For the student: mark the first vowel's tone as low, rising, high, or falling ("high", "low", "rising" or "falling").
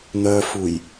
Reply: low